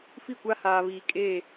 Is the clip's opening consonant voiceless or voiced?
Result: voiceless